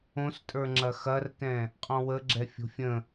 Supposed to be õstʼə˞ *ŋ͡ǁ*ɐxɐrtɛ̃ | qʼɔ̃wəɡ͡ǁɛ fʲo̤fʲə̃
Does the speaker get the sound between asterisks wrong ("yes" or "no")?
no